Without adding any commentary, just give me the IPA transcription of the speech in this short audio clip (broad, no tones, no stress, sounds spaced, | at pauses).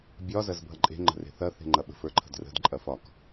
bʲ ɒ z ɐ z bʱ ɐ ǃʼ e̤ ŋ͡ǃ ə̤ r e̤ θ ɐ θ e̤ ŋ͡ǃ ɐ ɓ ə̤ f ə˞ ǃʰ ə̤ d r ə̤ d ǃʼ ɐ f ɒ k